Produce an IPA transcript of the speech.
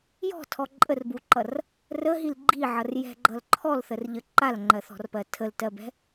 j ɔ̤ tʰ ɔ ǃʼ ə r b u ǃ ʌ r | r ə ɦ i l ɡ͡ǃ i ʕ ʌ r j ɛ̤ ɡ͡ǃ ʌ l ǃʰ ɔ l θ ə r ʎ ə ǃ a l ŋ͡ǃ ɜ θ ɔ̤ r p ɜ tʰ ə l t ɜ b ɛ̤

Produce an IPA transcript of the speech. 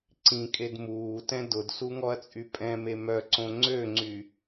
ǀ ĩ kʼ e d m uː t ɛ̃ d ʊ d s u ŋ ɔ ɐ̯ t͡sʼ y pʼ ɛ̃ m e m œ ǀ õ ŋ͡ǀ ø ŋ͡ǀ y

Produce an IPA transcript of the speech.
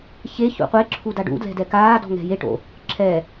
ç e ç ṵ qʷ e ǁʰ u d a ɖ ṵ d l ɛ̤ d ɛ k aː d ɔ̤ ŋ ɛ̤ j e ʈ o̰ | ǁʰ ɛ

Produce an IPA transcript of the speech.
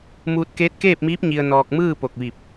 m uː˧ t̚ k eː˧˥ t̚ k eː˥˨ p̚ m iː˧˥ p̚ ɲ i˧ ə̯ n ɔː˧ k̚ m ɯː˥˨ p o˧˩ k̚ ʋ i˧˩ p̚

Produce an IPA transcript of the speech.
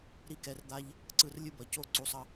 ɾ i˦ k ɛ˧ r d̪ a˦ ʎ | ǀ ɯ˦˨ r lʲ ɯ˦ b ʌ˨ c o˦ ǀ u˧ sˤ ʌ˦

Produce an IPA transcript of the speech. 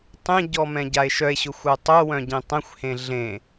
tˤ ẽ ɟ ɔ m ɛ̃ ɟ a e̯ ʃ œ e̯ ɕ ʊ xʷ œ tˤ œ w œ̃ ɟ ẽ tˤ ɛ̃ xʷ h ẽ ɮ ẽ

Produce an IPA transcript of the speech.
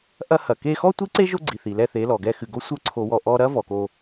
ʔ ɐ˦ h ɐ˨ k e˧ x ɔ˦ tʷ i˦ ǀ e˦ ʒ o˦ ɡ͡ǀ i˨ θ i˨ l ɛ˧ θ e˨˦ l ɔ˨ ɡ ɛ˦ x ɨ˧ ɡ o˦ sʷ ə˞˦ ǀʰ o˧ w ɔ˧ ʔ ɔ˧ ɾ ɐ˦ v ɔ˧ k o˦

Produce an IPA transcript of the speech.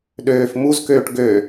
ɗ øː f m u z k øː ʈ ɡ ø

